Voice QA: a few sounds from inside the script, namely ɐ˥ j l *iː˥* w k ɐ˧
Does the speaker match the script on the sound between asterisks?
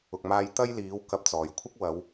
no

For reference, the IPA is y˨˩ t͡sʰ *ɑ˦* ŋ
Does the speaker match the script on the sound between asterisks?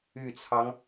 yes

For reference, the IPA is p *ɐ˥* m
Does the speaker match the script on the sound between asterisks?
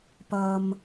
no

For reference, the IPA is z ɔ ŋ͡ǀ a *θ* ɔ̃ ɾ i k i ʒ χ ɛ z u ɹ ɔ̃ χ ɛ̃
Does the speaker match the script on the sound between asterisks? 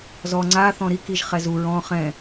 yes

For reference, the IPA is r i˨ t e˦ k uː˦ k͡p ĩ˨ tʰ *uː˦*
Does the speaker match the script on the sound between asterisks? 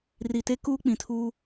yes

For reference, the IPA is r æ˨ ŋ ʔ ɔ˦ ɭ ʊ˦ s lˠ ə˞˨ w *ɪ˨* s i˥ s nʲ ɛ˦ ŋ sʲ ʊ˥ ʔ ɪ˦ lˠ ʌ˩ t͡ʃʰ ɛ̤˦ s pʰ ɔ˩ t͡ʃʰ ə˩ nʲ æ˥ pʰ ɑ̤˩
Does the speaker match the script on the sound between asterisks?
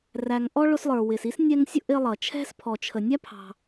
yes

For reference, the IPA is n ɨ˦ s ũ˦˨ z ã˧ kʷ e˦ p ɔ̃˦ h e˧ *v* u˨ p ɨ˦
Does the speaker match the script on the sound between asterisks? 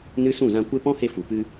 no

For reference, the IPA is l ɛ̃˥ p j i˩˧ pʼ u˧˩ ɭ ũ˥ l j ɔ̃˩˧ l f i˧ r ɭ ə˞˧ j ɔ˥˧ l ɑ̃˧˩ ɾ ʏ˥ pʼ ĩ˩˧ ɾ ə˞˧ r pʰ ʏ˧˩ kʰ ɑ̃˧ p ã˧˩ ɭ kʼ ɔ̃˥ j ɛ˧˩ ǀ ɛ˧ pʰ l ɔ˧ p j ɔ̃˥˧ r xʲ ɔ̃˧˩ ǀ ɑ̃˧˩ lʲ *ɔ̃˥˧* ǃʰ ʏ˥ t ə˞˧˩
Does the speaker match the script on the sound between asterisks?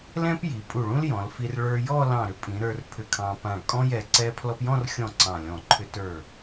no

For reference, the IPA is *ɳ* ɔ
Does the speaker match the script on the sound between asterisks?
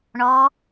yes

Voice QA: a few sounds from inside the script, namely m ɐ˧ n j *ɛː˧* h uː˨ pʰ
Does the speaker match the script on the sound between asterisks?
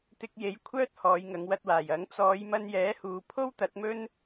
no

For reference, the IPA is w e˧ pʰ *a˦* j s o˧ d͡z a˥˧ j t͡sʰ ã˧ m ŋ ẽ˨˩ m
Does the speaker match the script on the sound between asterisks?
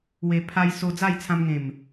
no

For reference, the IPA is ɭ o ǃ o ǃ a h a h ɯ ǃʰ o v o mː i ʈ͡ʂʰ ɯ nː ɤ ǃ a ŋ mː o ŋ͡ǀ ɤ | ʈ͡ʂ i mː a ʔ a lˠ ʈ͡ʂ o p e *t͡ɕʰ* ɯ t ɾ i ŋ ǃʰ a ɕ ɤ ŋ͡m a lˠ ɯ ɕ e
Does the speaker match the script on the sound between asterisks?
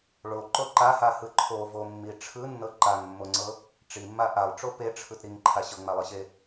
no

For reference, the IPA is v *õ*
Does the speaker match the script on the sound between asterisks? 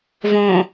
yes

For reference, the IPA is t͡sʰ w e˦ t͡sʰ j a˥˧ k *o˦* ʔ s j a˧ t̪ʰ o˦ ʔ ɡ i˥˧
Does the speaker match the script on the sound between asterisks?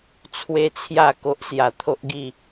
yes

